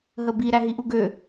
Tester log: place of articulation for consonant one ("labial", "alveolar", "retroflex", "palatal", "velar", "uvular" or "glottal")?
glottal